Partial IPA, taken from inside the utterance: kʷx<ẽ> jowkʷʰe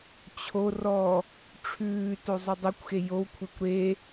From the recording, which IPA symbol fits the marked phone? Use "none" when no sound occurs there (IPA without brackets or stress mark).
e